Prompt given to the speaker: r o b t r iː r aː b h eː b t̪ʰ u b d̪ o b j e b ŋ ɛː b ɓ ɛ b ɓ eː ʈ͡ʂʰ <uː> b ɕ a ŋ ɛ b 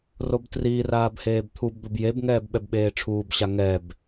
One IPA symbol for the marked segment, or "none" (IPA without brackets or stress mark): uː